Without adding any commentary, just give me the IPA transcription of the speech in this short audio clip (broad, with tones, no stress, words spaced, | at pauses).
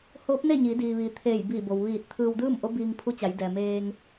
hoː˧˥p̚ne˥˨ ɲi˩˧diː˩ ʋiː˩t̪ʰeː˧˩jbiː˧˩bo˩w ʋiː˧˩t̚ t̪ʰɯː˧wdɯː˥˨mʔo˧˥biː˧ŋ pʰu˧˥t͡ɕa˩˧jdɛː˩ meː˧ŋ